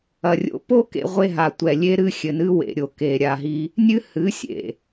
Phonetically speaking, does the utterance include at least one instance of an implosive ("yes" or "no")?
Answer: no